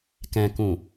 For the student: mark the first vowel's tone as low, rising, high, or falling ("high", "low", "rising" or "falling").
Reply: low